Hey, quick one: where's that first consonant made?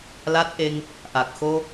tongue tip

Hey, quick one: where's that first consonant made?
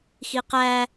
velum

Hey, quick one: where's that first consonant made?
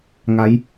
velum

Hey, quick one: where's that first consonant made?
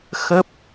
velum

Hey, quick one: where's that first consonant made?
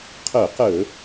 uvula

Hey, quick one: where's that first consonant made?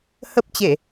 throat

